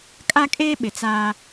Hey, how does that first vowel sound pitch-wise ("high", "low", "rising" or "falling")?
high